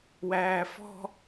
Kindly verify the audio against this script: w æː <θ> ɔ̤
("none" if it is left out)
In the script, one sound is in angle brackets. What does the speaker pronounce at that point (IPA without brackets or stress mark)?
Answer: f